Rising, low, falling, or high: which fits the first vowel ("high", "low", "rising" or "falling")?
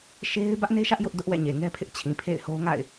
high